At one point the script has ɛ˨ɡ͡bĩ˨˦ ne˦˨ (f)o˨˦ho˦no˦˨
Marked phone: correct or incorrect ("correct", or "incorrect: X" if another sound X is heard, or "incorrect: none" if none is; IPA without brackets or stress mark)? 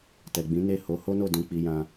incorrect: h